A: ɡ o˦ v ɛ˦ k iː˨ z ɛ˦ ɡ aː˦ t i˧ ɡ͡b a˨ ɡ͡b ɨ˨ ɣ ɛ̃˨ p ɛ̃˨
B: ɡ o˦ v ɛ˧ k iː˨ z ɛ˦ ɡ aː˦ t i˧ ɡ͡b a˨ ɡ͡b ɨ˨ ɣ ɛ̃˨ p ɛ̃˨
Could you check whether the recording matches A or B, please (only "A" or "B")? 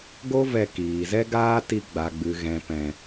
B